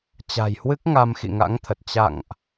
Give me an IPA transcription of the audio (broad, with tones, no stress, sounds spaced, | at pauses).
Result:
t͡ɕ a̤˨˩ j h w ɨ˦˥ k̚ ŋ a˧ m x ḭ˧˨ ŋ a̰˧˥ ŋ t̪ʰ ə˨˩ t̚ t͡ɕ a̰˧˨ ŋ ʔ